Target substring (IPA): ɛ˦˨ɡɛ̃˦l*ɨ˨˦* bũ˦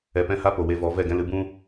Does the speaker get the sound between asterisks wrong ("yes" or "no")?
no